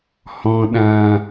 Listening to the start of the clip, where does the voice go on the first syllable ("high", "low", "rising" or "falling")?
low